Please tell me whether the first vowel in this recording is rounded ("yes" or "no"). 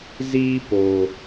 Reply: no